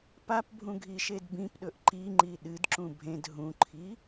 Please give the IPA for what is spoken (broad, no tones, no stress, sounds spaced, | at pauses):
p a p bʱ ũ ɡʱ i ʃ e d b ĩ p ɗ ɵ ʔ ǃ i ŋ͡ǃ i ɗ ɨ d ǁ ũ bʱ ẽ d ɦ ũ ǃʰ i